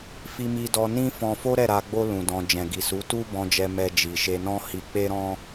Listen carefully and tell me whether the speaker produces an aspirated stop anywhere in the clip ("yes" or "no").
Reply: no